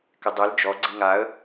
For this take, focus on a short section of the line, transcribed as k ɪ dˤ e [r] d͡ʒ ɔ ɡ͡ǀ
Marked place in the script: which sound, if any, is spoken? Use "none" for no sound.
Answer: l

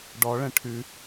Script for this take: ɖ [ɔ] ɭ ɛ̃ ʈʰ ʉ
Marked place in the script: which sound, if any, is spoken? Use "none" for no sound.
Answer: ɔ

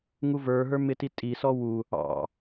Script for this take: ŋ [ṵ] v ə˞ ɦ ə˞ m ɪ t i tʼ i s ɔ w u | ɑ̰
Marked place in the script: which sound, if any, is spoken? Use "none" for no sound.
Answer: u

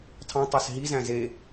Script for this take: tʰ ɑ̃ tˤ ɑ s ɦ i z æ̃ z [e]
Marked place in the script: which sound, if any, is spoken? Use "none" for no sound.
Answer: e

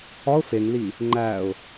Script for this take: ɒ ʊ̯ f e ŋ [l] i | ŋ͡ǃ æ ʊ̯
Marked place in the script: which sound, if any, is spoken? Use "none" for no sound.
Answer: l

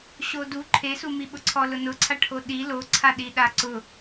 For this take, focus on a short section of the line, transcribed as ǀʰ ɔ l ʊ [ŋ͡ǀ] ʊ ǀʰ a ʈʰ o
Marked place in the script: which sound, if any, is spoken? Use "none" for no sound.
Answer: n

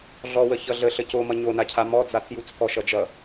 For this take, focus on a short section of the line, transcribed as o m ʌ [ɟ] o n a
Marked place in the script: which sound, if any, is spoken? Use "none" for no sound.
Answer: ɲ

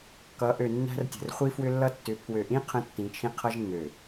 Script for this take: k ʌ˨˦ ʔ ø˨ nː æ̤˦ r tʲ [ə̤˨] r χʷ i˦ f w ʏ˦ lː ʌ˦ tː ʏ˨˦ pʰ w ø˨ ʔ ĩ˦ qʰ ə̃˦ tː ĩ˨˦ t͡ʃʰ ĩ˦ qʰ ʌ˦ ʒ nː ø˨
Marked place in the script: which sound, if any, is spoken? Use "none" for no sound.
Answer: ə̤˨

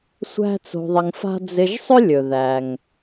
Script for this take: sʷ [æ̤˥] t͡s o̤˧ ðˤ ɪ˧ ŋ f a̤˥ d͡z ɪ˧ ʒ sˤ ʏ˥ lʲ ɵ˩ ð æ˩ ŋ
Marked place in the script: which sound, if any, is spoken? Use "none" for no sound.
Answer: æ̤˥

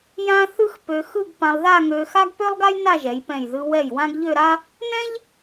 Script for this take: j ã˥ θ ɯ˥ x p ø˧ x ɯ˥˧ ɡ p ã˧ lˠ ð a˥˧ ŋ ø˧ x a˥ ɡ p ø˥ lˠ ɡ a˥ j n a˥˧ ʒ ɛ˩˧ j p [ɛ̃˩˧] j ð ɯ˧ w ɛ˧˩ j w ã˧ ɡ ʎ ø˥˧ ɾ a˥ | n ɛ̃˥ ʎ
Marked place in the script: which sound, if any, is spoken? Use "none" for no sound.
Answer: ɛ̃˧˩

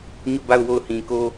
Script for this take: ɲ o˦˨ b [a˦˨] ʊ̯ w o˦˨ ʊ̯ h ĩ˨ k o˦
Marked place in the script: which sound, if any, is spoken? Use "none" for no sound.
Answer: a˦˨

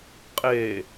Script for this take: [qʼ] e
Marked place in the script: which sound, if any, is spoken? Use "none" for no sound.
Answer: qʼ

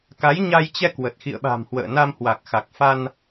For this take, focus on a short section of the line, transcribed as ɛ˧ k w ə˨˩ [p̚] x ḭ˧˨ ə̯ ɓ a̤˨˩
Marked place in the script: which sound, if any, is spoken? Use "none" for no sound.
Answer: t̚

